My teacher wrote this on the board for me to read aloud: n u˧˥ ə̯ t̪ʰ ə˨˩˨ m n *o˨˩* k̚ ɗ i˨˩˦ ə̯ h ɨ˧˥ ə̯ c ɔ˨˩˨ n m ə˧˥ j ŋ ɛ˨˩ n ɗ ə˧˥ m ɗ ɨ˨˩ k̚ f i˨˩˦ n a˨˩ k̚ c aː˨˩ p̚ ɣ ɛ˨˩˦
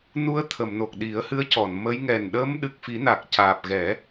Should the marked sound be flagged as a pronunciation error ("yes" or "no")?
no